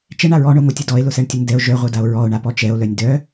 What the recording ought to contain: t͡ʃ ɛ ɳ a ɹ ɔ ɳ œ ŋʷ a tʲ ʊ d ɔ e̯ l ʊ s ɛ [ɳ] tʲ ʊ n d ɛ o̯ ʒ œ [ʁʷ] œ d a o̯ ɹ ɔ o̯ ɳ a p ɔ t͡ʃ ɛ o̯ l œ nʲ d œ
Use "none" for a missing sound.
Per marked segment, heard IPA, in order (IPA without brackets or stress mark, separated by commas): ɳ, ʁʷ